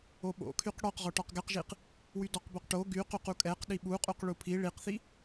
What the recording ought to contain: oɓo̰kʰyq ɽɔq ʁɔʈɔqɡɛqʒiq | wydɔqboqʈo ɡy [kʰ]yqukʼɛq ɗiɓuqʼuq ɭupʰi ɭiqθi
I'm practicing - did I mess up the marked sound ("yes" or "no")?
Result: yes